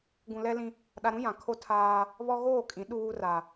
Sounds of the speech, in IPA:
ɡũ˨lɛ˦lĩ˦ | ɗa˨ɾũ˦ jã˨ kʰo˦tʰaː˦ | βɔ˦ ɣoː˦˨kʼĩ˨˦ ɗuː˦ra˨

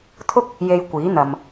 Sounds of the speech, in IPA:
t̪ʰʊ˥k̚ | je˨j kʷiː˨˥n̪ɐ˨m

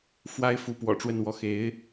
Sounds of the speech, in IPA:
fwa˥ɪ̯fu˧˥ pwɔ̰˨˩ʈ͡ʂwə˥˧nwɔ˥˩ xe˧˥ɪ̯

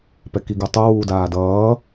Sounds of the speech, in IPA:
pɛkiɡutˤu wuːdaːdʌː

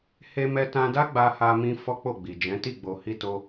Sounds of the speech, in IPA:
he˧mɛ˧tã˧da˦ ɡ͡ba˧ha˧mĩ˧ fɔ˦k͡po˦˨ɡ͡bi˨ d͡ʒɛ̃˨˦ti˦˨ ɡ͡bo˨hi˧to˧

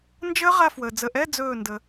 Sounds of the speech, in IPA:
nd͡ʒəː˦˥ ʁa˥˧fwəː˨ d͡zə˨ʔɛ˧˥˧ d͡zɵː˥˩ndə˨

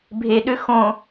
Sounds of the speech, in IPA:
bʱeɗø xõ

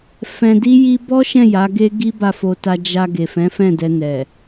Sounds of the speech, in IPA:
fɛ̃˧di˦ji˦ bɔ˦ʃɛ̃˦˨ ja˨˦ɡe˦ ɡi˦ba˦˨fo˧ta˧ d͡ʒa˧ ɡe˨fɛ̃˨˦ fɛ̃˦˨dɛ˧nɛ˨

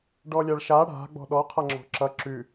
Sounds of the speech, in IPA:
ɖɔlʲaɭʃa ɽa̤ ɡ͡bɔ̤ɗɔ qʰʌŋ͡ǁɔ̤ǁʌ ǁʉ

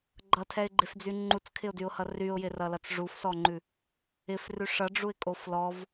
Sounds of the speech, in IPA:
ɡ͡ǃʌtʰɛɪ̯ɡ͡ǃefd͡zy ŋ͡ǃut͡skʰɪʊ̯dyʊ̯hʌ ryʊ̯jɪrʌlʌt͡s ʐufsɔŋ͡ǃʉ | ɪfrʉ ʂʌɖ͡ʐuɪ̯kʼof lɔv

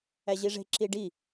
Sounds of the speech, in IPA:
æʑiʐe̤ ǁiɖi

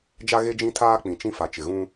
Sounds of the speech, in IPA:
d͡ʒa˦ ɣe˦d͡ʒĩ˦tʰaː˦ k͡pĩ˨t͡ʃĩ˦ fa˨t͡ʃɪ˨ɣũ˦

